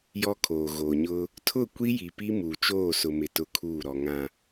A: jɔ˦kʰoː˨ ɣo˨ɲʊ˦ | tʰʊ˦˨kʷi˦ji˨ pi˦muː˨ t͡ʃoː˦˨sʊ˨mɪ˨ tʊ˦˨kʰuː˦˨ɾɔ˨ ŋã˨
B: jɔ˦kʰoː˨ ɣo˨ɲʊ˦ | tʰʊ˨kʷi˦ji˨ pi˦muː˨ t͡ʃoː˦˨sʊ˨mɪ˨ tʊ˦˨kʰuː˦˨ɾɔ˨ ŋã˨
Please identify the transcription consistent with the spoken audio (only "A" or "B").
A